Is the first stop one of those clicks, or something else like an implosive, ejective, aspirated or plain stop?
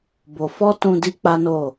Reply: plain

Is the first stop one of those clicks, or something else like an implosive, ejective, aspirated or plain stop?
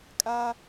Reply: ejective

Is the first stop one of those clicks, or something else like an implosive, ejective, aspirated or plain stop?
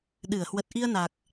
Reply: implosive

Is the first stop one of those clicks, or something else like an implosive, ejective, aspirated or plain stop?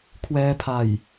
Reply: aspirated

